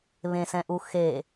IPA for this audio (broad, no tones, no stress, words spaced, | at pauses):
βẽsɛ̃ʔu xe